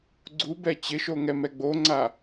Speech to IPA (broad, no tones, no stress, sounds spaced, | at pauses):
ɡ͡ǀ u b ɛ t͡ɕ ɪ ʃ o ŋ ɛ m ɛ ɡ͡b o ŋ͡ǀ a